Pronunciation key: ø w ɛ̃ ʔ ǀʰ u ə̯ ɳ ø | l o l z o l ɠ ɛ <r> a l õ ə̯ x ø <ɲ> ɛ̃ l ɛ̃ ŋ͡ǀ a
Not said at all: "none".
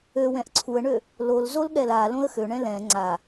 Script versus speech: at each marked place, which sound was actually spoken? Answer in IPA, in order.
l, ɳ

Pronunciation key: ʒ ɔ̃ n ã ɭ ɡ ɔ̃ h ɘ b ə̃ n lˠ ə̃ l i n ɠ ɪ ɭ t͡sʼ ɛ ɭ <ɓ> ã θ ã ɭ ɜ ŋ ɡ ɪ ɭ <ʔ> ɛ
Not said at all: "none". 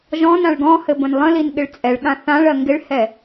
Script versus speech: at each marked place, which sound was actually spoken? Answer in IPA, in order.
ɠ, h

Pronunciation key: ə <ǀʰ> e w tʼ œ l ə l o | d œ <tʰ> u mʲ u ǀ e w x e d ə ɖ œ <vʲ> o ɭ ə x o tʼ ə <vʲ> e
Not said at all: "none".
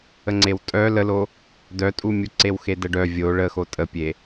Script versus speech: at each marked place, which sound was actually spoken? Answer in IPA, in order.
ŋ͡ǀ, tʼ, vʲ, pʲ

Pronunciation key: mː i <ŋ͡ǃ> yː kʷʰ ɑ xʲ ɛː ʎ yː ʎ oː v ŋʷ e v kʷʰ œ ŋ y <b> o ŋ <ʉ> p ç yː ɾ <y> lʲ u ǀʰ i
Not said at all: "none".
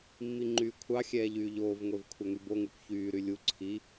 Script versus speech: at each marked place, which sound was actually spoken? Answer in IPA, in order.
ŋ͡ǃ, b, ʉ, y

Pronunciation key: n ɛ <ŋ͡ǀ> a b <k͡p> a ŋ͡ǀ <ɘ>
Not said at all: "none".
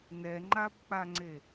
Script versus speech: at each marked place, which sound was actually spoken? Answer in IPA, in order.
ŋ͡ǃ, k͡p, e

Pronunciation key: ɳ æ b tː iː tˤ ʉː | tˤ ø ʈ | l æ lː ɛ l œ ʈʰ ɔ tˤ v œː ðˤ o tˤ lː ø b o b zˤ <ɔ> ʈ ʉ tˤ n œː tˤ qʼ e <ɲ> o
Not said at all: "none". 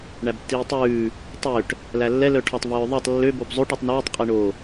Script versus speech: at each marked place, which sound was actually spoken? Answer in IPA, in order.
o, ɳ

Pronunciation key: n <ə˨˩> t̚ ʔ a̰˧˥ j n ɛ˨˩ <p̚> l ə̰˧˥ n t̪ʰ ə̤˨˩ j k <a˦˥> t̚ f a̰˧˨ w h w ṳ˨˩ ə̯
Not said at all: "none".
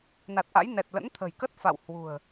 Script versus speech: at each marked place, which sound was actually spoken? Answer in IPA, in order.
a˨˩, t̚, ə˦˥

